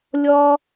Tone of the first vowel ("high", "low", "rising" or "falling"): high